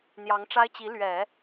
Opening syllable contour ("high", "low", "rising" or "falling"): rising